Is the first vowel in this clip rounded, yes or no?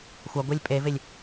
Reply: no